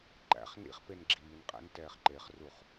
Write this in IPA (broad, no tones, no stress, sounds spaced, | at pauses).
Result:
ǃ æ̰ χ n ḭ χ p e n ɡ͡ǁ iː n qʼ æ̰ n t ɛː χ ǃ e χ r u χ